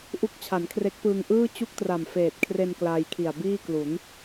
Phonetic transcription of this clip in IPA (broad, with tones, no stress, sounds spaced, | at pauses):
ʔ u˦˥ k̚ t͡ɕʰ a˩˦ n kʰ r e˦˥ k̚ p ɯː˧ ŋ ʔ ɯː˥˩ t͡ɕ u˥˩ k̚ t r a˨˩ m f eː˨˩ t̚ kʰ r e˧ n k l aː˧ j kʰ i˨˩ a̯ b iː˥˩ k l u˩˦ n